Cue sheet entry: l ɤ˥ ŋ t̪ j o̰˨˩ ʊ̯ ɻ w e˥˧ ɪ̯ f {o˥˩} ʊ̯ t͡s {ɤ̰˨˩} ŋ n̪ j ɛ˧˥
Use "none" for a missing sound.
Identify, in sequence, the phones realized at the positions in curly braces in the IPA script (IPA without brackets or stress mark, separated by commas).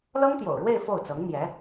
o˥˩, ɤ˧˥